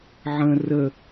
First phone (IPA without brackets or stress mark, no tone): ʕ